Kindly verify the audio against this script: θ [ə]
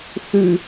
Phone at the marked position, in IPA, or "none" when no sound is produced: ʉ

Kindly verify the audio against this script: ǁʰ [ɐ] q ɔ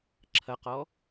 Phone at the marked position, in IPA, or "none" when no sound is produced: ɐ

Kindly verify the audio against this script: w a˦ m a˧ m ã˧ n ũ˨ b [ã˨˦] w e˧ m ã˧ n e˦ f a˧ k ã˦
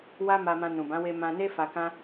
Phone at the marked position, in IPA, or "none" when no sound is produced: ã˨˦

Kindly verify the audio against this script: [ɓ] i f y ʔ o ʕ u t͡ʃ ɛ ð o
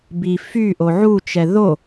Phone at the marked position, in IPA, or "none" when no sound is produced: b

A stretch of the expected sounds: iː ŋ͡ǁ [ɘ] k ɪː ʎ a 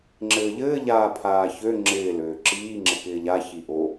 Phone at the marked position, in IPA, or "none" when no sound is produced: ɘ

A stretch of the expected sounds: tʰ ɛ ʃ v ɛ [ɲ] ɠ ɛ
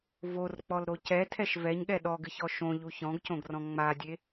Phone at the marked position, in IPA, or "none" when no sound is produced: ɲ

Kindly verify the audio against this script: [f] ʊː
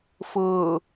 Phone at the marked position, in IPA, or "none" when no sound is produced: f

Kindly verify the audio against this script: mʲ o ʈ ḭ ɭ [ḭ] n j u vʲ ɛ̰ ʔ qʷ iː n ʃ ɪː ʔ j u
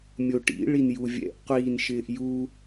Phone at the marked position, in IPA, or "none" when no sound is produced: i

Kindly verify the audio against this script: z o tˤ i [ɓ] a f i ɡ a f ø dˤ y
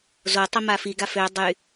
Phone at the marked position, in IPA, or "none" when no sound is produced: m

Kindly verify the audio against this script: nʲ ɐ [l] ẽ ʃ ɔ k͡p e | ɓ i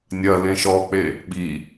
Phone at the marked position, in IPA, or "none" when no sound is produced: l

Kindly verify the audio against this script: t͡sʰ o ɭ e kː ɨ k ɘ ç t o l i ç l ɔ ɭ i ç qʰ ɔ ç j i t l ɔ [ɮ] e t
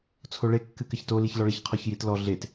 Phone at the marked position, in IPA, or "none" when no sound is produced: ɮ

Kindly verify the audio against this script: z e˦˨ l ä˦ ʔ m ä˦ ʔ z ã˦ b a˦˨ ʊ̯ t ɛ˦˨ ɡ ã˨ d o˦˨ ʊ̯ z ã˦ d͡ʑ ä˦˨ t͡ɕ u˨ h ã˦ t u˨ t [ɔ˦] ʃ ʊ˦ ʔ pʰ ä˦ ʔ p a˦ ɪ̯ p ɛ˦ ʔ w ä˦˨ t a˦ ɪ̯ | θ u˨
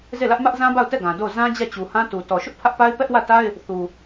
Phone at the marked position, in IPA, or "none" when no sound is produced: ɔ˨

